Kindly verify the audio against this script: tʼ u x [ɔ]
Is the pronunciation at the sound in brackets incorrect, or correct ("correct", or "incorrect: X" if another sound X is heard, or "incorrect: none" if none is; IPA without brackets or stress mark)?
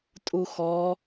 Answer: correct